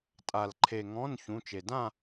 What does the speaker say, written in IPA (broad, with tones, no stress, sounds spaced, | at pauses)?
tʼ a˩ l ǃʰ e˩ ŋ ɔ̃˩˧˩ n ç ũ˩˧˩ t͡ʃ e˩ d ã˥˨